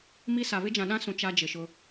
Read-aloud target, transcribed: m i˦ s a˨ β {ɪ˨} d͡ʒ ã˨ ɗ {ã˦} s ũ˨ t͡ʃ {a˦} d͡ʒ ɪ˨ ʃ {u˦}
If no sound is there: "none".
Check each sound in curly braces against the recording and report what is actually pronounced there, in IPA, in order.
ɪ˦, ã˦, a˦, ʊ˦

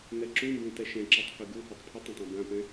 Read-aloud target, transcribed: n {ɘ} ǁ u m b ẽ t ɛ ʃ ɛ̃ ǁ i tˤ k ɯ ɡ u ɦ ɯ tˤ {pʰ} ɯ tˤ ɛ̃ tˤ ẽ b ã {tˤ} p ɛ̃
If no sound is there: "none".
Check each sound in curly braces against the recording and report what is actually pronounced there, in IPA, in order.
ɛ, pʰ, none

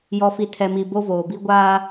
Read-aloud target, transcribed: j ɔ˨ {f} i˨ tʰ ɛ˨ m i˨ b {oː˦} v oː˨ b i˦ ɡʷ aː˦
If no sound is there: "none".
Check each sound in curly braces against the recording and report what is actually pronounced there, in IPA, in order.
f, o˦

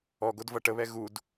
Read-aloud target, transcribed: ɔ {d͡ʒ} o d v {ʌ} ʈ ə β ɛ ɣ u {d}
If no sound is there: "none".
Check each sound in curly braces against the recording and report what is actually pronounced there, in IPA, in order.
ɡ, ʌ, d

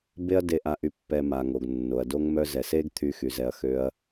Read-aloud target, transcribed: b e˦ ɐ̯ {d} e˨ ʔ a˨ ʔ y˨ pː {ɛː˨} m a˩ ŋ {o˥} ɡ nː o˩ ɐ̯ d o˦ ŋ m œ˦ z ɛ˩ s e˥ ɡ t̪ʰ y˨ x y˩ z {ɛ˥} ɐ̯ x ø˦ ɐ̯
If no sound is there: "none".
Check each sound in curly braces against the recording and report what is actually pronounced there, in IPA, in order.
d, ɛ˨, o˩, ɛ˨

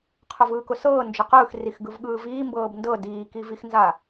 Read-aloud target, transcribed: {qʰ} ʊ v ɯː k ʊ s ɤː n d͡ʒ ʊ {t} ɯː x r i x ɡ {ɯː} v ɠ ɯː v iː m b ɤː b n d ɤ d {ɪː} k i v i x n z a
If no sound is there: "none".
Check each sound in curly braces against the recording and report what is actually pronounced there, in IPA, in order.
qʰ, q, ɯ, iː

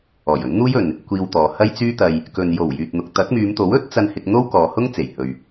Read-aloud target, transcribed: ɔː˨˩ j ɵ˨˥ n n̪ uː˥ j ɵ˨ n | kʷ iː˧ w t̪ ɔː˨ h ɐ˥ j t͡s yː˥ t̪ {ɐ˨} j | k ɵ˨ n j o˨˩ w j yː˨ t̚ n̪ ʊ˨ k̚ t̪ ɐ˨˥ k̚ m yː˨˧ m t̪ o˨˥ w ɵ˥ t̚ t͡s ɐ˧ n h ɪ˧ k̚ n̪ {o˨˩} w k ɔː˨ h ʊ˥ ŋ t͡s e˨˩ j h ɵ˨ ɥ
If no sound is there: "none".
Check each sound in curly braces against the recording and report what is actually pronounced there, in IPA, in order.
ɐ˧, o˥

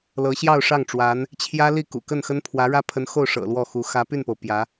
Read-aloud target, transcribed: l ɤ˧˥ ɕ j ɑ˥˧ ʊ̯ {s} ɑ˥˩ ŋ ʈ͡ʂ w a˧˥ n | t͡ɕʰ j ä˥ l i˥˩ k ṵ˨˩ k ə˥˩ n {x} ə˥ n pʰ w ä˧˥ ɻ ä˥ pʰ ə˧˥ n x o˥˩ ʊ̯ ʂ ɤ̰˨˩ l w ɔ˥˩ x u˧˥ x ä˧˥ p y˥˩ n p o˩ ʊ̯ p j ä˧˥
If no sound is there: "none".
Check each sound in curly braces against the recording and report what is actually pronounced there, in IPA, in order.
ʂ, x

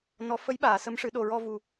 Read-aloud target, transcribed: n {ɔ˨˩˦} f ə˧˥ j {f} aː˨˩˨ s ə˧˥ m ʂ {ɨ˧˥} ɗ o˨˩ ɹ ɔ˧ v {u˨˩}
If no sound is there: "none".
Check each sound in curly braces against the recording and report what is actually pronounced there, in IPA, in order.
ɔ˨˩˦, ɓ, ɨ˨˩˦, u˨˩

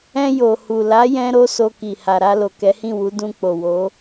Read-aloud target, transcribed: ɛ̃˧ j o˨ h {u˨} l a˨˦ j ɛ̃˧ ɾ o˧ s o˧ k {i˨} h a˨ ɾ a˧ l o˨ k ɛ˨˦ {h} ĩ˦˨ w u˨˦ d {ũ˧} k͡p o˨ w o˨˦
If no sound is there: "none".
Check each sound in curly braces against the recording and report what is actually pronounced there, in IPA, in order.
u˨, i˨, h, ũ˧

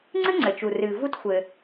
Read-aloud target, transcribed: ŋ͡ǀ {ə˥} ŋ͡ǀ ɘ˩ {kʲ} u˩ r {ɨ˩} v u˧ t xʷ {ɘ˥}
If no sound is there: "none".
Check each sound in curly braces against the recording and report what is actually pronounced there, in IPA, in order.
ɨ˥, t͡ʃ, ɨ˩, ɘ˩

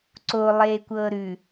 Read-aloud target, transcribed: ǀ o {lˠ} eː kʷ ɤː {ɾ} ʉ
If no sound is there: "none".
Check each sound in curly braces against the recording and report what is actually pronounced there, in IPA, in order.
lˠ, ɾ

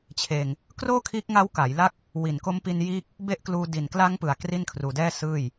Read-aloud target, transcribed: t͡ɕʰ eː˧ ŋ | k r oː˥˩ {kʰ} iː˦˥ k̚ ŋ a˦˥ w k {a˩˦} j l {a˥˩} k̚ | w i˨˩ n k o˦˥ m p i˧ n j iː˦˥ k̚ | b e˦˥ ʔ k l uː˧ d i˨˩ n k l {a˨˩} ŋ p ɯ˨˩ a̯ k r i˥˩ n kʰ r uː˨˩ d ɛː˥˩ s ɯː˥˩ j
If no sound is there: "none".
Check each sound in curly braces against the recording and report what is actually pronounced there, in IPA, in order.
kʰ, a˩˦, a˥˩, a˦˥

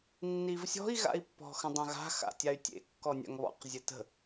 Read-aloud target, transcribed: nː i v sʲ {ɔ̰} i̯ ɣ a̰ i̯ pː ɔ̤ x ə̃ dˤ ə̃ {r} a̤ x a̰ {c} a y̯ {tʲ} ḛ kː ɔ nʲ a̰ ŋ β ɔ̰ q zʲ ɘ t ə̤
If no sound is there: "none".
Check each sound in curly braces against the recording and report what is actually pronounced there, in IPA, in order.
ɔ̤, ɣ, tʲ, tʲ

